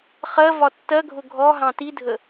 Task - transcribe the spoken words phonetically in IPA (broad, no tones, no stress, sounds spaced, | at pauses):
χ ɜ v ɒ tː ɜ ɡʱ ʊ ɡʱ ɔ ɦ ɑ̃ t i dʱ ə